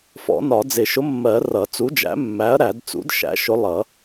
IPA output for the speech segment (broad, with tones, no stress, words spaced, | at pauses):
fɔ̰˨˩˦nɒ˨˩˦ d͡zɪ˨˩˦ ʃʊ˨˥mːɜ˨˩˦ rʌ˨˩˦t͡su˨˥d͡ʒæ̰˨˥mːæ˨˥ɐ̯ ɾæ˨˩˦d t͡sṵ˨˥d ʃæ̰˨˥ʃʊ˨˥ lˠʌ˨˩˦